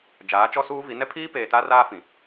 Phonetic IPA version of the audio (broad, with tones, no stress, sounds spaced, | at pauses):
d͡ʒ aː˨˦ t͡ʃ ɔ˦ s uː˦ v i˨˦ n ɛ˦ pʰ iː˦ p eː˨ t a˦ r aː˦ f ĩ˨